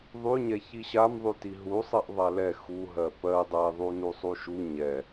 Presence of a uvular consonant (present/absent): absent